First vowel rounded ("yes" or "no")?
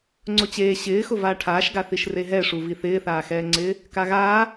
yes